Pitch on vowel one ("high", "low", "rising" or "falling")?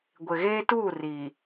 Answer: low